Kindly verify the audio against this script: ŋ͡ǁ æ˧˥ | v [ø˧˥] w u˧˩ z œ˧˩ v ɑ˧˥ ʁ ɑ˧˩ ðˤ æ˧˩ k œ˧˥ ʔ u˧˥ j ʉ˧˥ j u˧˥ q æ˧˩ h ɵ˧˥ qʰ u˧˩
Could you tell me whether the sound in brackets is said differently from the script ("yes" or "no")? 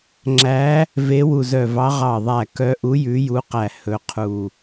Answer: yes